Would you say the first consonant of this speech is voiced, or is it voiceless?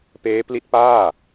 voiceless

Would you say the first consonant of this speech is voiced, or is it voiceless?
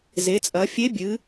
voiced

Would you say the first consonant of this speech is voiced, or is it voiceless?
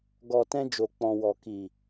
voiced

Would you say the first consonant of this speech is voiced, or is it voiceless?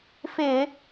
voiceless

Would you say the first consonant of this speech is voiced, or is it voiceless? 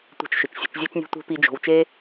voiceless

